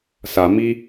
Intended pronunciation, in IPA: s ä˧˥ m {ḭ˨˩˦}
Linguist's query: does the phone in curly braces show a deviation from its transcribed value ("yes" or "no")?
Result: yes